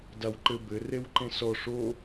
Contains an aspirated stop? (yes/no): no